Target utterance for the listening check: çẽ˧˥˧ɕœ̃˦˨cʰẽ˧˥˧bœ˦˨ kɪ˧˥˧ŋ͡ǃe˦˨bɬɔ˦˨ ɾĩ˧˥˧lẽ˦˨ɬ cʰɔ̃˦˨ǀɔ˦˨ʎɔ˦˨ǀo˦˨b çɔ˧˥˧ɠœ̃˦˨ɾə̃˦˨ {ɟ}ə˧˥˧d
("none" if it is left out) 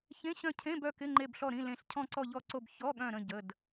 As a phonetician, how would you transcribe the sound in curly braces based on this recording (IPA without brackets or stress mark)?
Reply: ɟ